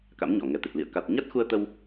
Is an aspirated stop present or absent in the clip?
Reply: absent